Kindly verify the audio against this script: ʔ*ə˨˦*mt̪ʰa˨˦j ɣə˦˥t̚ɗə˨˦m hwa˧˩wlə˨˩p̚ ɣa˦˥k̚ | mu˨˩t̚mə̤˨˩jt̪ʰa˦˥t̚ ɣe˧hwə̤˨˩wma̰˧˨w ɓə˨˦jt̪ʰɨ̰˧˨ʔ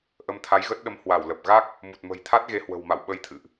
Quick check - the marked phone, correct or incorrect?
correct